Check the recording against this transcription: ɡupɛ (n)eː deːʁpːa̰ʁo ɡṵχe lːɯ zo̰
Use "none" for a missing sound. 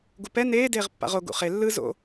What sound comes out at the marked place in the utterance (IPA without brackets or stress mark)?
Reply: n